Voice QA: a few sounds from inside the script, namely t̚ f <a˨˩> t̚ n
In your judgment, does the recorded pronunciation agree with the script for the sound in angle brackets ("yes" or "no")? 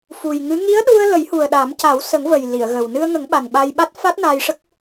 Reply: no